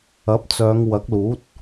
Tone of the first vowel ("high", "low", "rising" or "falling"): rising